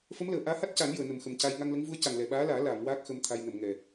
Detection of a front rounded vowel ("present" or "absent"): absent